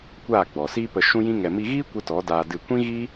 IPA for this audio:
kʷ aː˦˨ ɡ͡b ɔ˨ s iː˦ p ə˧ ʃ ũ˦ j ĩ˦ ŋ ɛ˨ m i˧ ɣ iː˦ kʷ ə˦ t ɔ˨˦ d aː˧ d ɨ˦˨ kʷ ĩ˦ ɣ i˦

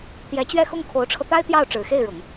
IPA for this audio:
t̪ j ɛ˧˥ t͡ɕ ɥ ɛ˥˧ x ʊ˥˩ ŋ kʰ o˧˥ ʊ̯ ʈ͡ʂʰ ɤ˧ t̪ a˥ ɪ̯ t̪ j ɑ˥˩ ʊ̯ ʈ͡ʂ ɻ̩˨˩ x e˥˩ ɪ̯ ɻ ʊ˨˩˦ ŋ

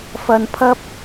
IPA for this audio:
f ɐ˧ n pʰ ɐ˥ p̚

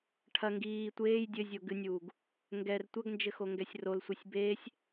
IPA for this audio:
ʈʰ ɐ ŋ ɡ iː tʷ eː j dʲ ɘ zʲ o ɡ ɨ nʲ uː ɡ | ŋ ɡ ɛ r tʷ ɐ ɡ n d͡ʒ ɘ x o ŋ ɡ ɛ sʲ r o l sʷ ɛ sʲ b eː sʲ

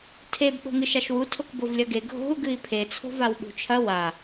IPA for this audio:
tʰ e b ɓ o̤ ŋ ɨ ʃ a ʃ w u tʰ o k b o v lʲ ɐ ɡ e ɡʱ o̤ u̯ ɡ ɨ i̯ pʰ e t͡sʰ o̤ v a w ɓ ṳ t͡ʃʰ ɐ w a

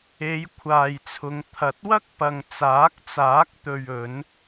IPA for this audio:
e˨˧ j kʷʰ aː˨ j t͡sʰ ʊ˨˧ ŋ t̪ʰ ɐ˨˥ t̚ w ɐ˥ k̚ p ɐ˨ ŋ t͡s aː˨˥ k̚ t͡s aː˨˥ k̚ t̪ ɵ˨ ɥ ɵ˨˧ n

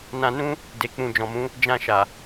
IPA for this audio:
n ã˧ n ũ˦ | d e˨ k͡p ũ˨ d͡ʒ ɔ̃˨ m ũ˨˦ | d͡ʒ ã˧ ʃ a˨

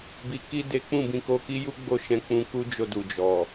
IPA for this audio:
b i˨ k i˧ d e˦ k͡p ũ˦˨ b ĩ˧ k o˧ k i˦ j u˦ ɡ͡b o˦˨ ʃ ɛ̃˧ k͡p ũ˧ k u˦ d͡ʒ o˧ d u˨ d͡ʒ ɔ˨

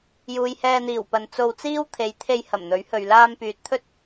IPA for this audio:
j uː˨ j h ɛː˧ n̪ iː˨˩ w p ɐ˨ n t͡s o˧ w t͡s iː˥ w t̪ʰ e˨˧ j t̪ʰ e˧ j h ɐ˨˩ m n̪ ɵ˨˥ ɥ h ɵ˨ ɥ l aː˧ m p yː˨ t̚ t̪ʰ ɵ˥ t̚

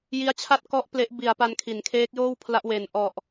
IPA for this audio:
j i˦˥ a̯ t͡ɕʰ a˥˩ t̚ k ɔ˦˥ ʔ p l e˦˥ ʔ b i˨˩ a̯ p a˧ n kʰ i˩˦ n kʰ eː˦˥ k̚ j oː˥˩ w pʰ l a˦˥ ʔ w e˨˩ n ʔ ɔ˨˩ ʔ

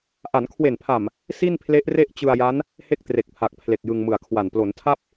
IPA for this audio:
ʔ a˩˦ n kʰ w e˨˩ n pʰ a˨˩ m | s i˥˩ n pʰ l e˦˥ ʔ r e˥˩ ʔ t͡ɕ ɯ˧ a̯ j a˦˥ n | h e˥˩ k̚ t r e˨˩ k̚ pʰ a˨˩ k̚ pʰ l e˨˩ k̚ j ɯ˧ ŋ m ɯ˨˩ a̯ kʰ w a˨˩ n p l o˩˦ n tʰ a˥˩ p̚

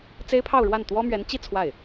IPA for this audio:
t͡s e˥ ɪ̯ pʰ ɑ˥˧ ʊ̯ ɻ w a˥˩ n t̪ w ɔ˥ m ɥ ɛ˧˥ n t͡ɕ i˥˧ t͡sʰ w a˥˩ ɪ̯

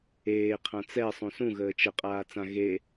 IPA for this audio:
eː qʰ ã t͡s ɛ sˤ ũ s ũ ɣ əː t͡ʃ ə qʼ aː t͡s ã ɣ e

